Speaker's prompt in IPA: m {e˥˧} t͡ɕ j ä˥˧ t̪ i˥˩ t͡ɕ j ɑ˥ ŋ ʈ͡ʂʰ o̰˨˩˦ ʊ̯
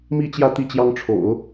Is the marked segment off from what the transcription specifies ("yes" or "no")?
yes